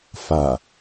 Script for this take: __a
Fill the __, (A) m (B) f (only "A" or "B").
B